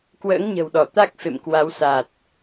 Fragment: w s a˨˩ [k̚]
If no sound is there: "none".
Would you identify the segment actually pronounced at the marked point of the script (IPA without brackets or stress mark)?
t̚